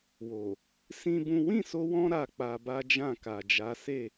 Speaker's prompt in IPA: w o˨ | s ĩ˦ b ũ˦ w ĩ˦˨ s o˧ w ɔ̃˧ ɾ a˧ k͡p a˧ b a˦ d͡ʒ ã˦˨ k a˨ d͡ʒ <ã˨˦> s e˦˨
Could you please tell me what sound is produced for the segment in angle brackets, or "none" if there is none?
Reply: a˨˦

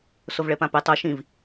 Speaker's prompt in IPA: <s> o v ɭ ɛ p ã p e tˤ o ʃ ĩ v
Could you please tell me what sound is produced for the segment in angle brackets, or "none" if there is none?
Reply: s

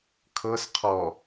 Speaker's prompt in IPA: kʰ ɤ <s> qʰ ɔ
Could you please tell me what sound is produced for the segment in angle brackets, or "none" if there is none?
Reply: s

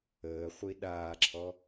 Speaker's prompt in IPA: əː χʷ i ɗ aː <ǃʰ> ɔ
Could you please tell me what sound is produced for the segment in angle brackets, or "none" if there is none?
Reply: ǁʰ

